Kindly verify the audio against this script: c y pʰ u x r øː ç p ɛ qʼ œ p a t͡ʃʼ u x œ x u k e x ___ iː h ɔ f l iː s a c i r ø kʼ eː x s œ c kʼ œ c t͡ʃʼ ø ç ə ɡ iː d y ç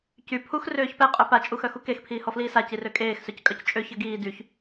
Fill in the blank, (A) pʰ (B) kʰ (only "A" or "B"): A